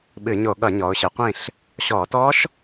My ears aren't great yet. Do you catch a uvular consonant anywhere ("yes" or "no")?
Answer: yes